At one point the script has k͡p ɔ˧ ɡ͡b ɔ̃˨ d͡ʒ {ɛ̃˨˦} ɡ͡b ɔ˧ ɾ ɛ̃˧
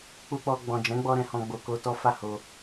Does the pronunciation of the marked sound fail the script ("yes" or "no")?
no